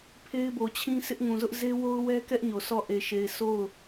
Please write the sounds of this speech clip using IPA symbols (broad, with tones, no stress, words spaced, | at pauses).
pʰe˦ɪ̯bo˨t͡ɕʰĩ˦ sʰɪ˦ʔŋũ˨zʊ˦ʔ ze˦wo˦ʊ̯wɛ˦ kɛ˦ʔ ɲo˨sɔ˦˨ ʔe˨ʃe˨ɪ̯ so˦˨ʊ̯